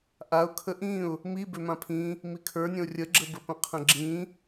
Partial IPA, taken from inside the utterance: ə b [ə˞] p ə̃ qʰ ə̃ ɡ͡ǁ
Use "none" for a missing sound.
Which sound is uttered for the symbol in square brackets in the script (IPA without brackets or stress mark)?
ə